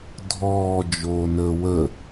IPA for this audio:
dʱ ɔː d͡ʒ oː n əː w ə

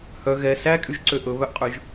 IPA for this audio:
h œ ɣ ɛ s æ kʼ y ʒ ǀ ø ʔ ɵ β œ ʔ qʼ ʉ ʒ

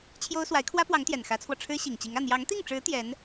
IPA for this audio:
t͡ɕʰ j o˥ ʊ̯ s w a˧˥ ɪ̯ kʰ w ä˥ p w ɑ˧˥ ŋ t̪ j ɛ˨˩ n x ä˧˥ t͡sʰ w ɔ˧ ʈ͡ʂʰ ɻ̩˥ ɕ i˨˩ ŋ t͡ɕ i˧˥ ŋ ä˥˩ n̪ j ɑ˧˥ ŋ t̪ i˥˩ ŋ ʈ͡ʂ ɻ̩˧˥ t̪ j ɛ˧˥ n

